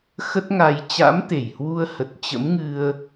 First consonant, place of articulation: velar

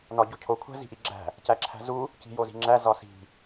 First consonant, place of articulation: alveolar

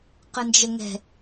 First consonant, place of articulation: uvular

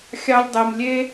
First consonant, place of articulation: velar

